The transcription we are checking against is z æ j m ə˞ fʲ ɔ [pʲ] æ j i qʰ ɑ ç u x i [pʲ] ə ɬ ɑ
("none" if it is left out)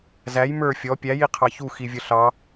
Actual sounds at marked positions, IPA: pʲ, vʲ

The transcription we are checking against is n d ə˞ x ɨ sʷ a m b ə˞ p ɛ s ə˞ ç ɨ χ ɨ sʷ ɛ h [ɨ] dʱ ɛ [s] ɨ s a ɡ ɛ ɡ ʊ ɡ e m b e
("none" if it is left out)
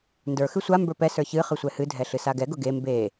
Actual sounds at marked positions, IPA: ɨ, ɬ

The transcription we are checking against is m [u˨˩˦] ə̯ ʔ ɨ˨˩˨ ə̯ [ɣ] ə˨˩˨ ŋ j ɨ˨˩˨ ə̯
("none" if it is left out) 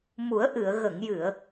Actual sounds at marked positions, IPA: u˨˩˦, ɣ

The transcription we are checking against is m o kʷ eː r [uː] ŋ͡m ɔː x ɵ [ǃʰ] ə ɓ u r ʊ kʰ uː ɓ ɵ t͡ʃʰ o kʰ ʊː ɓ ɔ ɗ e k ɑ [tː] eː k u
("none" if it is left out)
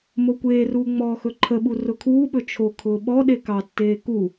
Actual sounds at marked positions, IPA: uː, ǃʰ, tː

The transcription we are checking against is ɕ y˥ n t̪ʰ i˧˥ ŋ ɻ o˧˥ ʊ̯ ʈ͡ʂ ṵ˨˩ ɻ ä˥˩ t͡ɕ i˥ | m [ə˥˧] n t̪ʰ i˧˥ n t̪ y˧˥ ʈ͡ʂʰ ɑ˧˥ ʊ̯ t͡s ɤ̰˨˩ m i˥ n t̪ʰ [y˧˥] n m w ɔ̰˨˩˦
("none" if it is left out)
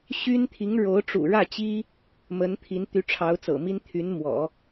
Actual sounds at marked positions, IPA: ə˧˥, y˧˥

